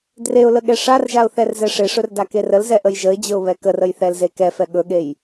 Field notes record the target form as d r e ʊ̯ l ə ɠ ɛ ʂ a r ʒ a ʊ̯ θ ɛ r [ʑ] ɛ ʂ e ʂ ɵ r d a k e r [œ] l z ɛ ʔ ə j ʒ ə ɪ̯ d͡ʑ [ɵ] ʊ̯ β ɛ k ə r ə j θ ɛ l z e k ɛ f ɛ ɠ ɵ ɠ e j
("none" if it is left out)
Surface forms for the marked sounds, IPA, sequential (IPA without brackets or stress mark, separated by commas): z, ə, ɵ